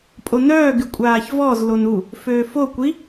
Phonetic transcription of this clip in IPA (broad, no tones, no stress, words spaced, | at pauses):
pʼonœː ɡykʷʼaːçvɔz lonu | føːfo kʷi